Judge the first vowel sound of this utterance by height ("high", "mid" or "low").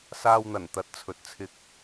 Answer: low